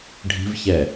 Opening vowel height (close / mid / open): close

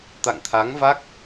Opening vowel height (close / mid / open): open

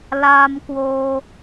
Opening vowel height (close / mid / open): open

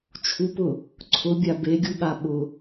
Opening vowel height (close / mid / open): close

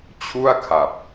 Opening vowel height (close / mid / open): close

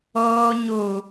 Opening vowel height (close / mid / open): mid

